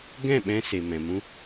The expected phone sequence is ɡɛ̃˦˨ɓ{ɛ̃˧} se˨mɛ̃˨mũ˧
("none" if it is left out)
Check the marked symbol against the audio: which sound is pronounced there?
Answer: ɛ̃˧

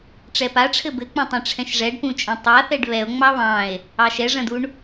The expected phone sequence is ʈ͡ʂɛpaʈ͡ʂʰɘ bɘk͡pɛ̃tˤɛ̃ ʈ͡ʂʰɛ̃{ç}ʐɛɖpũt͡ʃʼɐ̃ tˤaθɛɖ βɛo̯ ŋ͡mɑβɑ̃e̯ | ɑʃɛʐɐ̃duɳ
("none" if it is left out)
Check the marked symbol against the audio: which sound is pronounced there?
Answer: ʃ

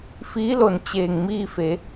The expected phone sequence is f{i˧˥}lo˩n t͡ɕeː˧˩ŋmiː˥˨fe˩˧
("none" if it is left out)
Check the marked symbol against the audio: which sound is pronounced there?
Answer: iː˧˥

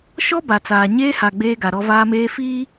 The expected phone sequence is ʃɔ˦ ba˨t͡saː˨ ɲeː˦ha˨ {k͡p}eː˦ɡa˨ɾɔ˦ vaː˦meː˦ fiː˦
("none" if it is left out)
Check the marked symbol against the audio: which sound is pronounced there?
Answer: ɡ͡b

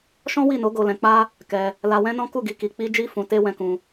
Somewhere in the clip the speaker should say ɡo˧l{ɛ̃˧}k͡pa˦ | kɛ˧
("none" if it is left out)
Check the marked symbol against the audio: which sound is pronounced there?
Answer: ɛ̃˧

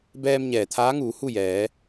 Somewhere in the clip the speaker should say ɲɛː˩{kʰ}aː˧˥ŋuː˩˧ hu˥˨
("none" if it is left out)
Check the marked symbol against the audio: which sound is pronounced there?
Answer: t̪ʰ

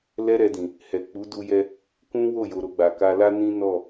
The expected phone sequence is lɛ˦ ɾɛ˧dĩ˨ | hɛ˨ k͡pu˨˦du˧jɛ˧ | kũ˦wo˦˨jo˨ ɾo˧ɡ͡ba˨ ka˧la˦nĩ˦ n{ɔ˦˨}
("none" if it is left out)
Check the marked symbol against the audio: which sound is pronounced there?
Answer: ɔ˦˨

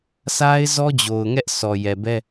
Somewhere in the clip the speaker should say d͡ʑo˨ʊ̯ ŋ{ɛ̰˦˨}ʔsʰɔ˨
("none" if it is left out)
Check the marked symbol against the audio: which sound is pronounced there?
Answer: ɛ˦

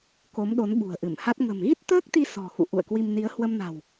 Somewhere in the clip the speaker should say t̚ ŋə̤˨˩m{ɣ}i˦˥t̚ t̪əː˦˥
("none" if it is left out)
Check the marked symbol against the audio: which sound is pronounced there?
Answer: ɣ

